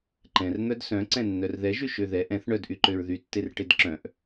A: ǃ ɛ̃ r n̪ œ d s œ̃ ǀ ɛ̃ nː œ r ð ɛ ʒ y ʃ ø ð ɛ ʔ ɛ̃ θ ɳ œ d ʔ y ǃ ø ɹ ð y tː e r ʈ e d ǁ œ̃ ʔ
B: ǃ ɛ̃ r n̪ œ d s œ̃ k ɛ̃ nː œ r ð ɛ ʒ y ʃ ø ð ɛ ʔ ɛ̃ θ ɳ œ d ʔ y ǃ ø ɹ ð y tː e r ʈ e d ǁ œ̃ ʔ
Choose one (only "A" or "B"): A